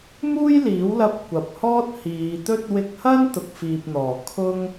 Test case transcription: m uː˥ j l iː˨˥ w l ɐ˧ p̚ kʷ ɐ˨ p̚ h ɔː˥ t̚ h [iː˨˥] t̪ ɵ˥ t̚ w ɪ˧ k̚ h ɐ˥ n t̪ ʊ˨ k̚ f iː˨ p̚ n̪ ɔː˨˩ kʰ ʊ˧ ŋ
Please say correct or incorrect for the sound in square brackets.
incorrect